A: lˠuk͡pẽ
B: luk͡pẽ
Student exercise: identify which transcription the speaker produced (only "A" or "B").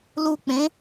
B